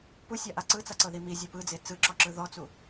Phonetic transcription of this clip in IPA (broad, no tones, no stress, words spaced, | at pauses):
pusʲaʔa ǀɯt͡saǀɤði mizʲɯ pɯd͡ze t͡sɯǁɔǁɯ ðɔt͡su